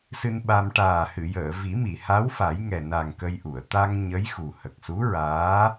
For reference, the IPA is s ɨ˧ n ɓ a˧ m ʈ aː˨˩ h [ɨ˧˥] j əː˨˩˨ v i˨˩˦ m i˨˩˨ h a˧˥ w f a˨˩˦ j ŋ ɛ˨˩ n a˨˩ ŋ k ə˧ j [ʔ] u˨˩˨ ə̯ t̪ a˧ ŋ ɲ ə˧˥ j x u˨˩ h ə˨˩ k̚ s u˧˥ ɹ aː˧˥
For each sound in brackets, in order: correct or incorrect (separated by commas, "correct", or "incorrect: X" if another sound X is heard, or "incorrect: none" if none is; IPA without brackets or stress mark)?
incorrect: ɨ˨˩˨, correct